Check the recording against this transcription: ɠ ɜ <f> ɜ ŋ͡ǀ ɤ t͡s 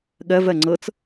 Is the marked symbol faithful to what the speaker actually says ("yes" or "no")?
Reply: no